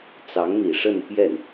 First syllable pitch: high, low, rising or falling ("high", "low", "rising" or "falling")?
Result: rising